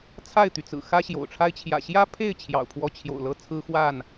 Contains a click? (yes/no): no